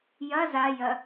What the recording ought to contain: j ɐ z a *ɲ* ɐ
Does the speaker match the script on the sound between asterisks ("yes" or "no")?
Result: no